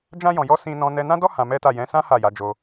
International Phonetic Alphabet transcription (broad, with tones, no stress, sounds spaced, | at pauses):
d͡ʒ ã˧ j ɔ̃˨ j ɔ˨˦ s ĩ˧ n ɔ̃˧ n ɛ˧ n ã˦ d ɔ˦ h ã˧ m ɛ˦ t a˦˨ j ɛ̃˨˦ s ã˦ h a˦˨ j a˨˦ d͡ʒ o˧